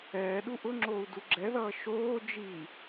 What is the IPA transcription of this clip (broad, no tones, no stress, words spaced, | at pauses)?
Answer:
ɛː ɗuʔʊŋ͡ǁoːu̯ duɡ͡ǁɛðʌː ʃoː d͡ʒiː